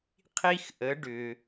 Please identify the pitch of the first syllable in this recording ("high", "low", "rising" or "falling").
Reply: high